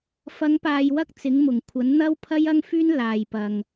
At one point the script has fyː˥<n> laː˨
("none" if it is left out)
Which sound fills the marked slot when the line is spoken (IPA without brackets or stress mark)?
n